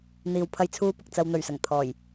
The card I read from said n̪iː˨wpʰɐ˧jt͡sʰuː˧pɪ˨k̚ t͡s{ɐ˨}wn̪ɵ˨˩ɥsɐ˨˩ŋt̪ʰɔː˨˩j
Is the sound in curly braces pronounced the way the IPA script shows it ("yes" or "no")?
yes